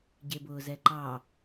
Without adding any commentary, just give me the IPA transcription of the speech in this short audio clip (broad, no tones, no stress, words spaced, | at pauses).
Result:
ɟebʊːzɛǃɑ